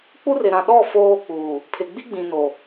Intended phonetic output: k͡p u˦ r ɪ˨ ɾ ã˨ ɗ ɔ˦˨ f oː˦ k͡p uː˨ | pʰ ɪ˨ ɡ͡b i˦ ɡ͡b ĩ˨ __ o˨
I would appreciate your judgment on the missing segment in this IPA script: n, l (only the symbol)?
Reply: n